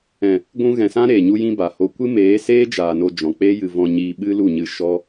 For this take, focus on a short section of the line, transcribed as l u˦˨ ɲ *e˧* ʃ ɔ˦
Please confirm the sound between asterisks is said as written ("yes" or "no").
no